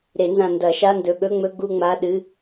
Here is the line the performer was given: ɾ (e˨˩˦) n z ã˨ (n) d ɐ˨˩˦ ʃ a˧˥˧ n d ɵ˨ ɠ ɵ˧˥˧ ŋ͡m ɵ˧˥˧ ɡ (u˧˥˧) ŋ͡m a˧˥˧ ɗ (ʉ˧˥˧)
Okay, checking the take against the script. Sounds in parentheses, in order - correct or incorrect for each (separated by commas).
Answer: correct, correct, incorrect, incorrect